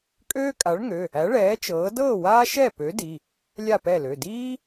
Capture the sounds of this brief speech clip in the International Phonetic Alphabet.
kʼøː˥kʼa˨˥ɭŋø˩˧˩ | æ˨˥ɭɛː˨˥ t͡ʃɤː˨˥ dɤː˥˨waː˥ ʃɛ˥˨pø˨˥ di˩˧˩ | lʲa˥˨pɛ˥˨lø˩˧˩ diː˥

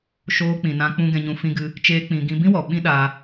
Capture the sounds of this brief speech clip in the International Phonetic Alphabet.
ʃoː˧k͡pĩ˨nã˧k͡pũ˧ ɡɛ̃˧ɲũ˧ fĩ˦ɡɨ˦ | t͡ʃeː˦k͡pĩ˧ ɡĩ˧bĩ˦wɔ˨ ɓĩ˦ɗaː˧

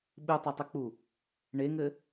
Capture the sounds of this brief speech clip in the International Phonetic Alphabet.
ɓɨtˤɐtˤɘk͡pu | ɳeŋɘ

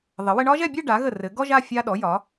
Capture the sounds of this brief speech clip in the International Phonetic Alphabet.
ðˤɘ˩˧wɘ˧ɳɒ˥ʒɛ˥˧ bʲɘ˥˧ ɖa˩˧ɣə˧˩ rɘ˩˧ɡɔ˥ʒa˥˧ fʲa˧ɗɔ˩˧jɒ˩˧

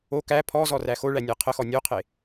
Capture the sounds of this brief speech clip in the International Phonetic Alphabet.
o kæ pʰɔzɔ ræxoɭæ nʲæqʰəxɔ nʲoqʰe

